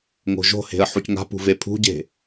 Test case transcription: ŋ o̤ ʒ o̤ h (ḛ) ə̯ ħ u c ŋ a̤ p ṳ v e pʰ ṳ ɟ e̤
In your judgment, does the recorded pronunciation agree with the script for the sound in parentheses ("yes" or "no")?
no